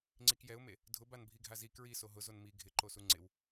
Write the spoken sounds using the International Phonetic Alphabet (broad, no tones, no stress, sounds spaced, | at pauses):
ŋ͡ǀ i k j ɛ ʊ̯ m e | dʱ ʊ b a n bʱ i ɡʱ a z i k ɹ i s o ɦ ʊ z o n m i ɡʱ ɪ ǃ o s u ŋ͡ǀ ɪ w